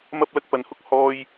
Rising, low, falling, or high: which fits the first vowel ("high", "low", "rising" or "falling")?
high